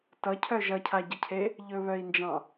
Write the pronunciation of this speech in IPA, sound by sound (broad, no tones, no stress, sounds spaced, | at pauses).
t ʌ cʰ œ ʒ ʌ cʰ a ɟ ʌ cʰ e | ʎ ɵ β œ i̯ n d͡ʒ ɑ̃